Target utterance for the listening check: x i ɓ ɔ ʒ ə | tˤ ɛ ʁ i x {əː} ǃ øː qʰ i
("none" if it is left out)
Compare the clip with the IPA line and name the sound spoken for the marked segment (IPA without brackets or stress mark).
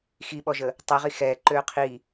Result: ɛː